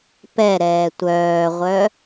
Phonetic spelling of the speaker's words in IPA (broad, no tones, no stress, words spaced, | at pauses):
pɛɾɛː tʷœːʁʷœ